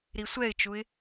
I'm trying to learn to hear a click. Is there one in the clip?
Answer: no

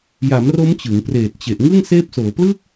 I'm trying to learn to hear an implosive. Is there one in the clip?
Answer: no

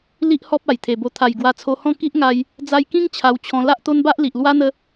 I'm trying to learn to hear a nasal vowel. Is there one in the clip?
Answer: yes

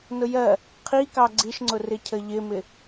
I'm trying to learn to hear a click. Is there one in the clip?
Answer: yes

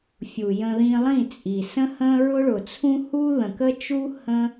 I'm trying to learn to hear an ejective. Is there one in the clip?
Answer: yes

